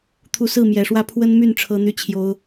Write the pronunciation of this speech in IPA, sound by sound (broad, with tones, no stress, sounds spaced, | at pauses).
t̪ʰ u˨˦ s ɹ̩˥˨ m j ɛ˨˩ ʂ w ä˦ pʰ w ə˦ n m y˥˨ n ʈ͡ʂʰ ɤ˦ n̪ y˦ t͡ɕʰ j o˦ ʊ̯